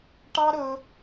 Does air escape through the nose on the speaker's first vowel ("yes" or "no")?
no